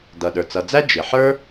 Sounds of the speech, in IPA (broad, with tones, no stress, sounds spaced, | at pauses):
d ʌ˩ ɗ ə˞˩ t͡s ʌ˩ d͡z æ˥ d͡ʒ ɪ˩ ħ ə˞˥